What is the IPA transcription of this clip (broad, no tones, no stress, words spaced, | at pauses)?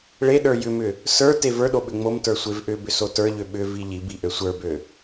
ɭeɗə˞ jʏmʏ | sə˞ tevə˞ɗo ɓʏŋ͡momtə˞ sʷevʔʏbʏ sotə˞ʎø ɓʏ viʎibi ʔøsʷə˞bø